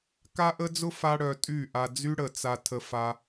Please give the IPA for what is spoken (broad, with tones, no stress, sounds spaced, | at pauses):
k a˦ ʔ ə˦ d͡z ʊ˦ f a˦ ɽ œ˧ tʼ y˦˨ ʔ a˧ d͡z y˦ ɽ ə˨ t͡s a˧ tʰ ə˧ f a˦